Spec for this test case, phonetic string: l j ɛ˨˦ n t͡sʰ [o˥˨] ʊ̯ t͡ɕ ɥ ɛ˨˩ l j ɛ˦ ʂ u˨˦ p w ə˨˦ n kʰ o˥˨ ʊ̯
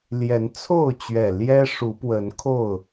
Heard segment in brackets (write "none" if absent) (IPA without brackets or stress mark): o˥˨